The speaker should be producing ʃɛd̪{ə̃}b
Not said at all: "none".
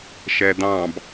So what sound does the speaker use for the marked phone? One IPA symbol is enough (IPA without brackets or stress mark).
ɑ̃